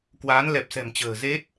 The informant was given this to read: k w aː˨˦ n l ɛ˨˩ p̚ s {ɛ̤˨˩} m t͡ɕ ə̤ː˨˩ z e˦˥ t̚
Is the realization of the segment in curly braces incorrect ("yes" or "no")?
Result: no